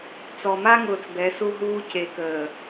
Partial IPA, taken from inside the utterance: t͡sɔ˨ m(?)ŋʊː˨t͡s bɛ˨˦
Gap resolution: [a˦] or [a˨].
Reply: a˦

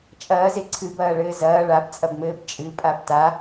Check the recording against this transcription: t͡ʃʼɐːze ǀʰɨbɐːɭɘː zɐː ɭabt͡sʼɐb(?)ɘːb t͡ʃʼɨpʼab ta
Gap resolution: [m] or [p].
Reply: m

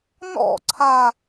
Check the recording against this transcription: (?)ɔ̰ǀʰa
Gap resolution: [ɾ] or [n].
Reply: n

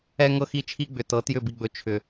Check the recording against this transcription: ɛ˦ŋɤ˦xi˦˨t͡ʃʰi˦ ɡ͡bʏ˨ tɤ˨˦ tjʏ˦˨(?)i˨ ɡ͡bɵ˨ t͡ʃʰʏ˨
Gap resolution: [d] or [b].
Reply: b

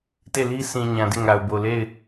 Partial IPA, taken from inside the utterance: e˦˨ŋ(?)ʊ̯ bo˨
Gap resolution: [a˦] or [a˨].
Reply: a˨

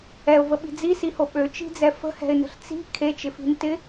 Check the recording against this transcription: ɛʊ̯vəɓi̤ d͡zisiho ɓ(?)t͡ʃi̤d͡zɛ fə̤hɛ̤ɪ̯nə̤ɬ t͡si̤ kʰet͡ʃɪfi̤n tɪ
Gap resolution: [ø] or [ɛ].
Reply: ø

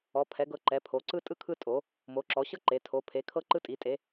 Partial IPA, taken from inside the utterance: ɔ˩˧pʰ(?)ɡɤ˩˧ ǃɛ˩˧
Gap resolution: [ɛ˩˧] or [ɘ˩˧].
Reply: ɛ˩˧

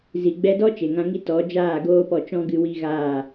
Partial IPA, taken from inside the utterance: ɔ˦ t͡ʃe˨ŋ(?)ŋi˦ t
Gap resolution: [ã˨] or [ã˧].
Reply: ã˧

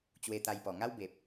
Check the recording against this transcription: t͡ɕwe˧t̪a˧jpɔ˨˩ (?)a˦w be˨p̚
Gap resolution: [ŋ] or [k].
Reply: ŋ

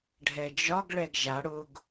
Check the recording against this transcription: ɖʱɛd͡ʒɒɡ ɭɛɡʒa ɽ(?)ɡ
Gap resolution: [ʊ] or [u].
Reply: ʊ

